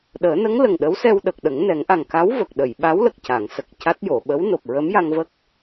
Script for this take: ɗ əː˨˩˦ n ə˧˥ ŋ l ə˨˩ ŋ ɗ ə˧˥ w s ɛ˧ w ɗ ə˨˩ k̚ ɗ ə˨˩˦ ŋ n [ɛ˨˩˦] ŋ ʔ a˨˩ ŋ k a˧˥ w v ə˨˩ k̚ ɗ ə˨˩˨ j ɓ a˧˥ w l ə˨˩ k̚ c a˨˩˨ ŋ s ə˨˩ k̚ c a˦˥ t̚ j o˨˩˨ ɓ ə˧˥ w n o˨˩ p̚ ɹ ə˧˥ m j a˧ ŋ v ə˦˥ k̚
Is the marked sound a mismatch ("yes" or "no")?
no